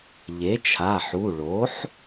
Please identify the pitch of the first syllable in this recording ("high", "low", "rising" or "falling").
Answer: rising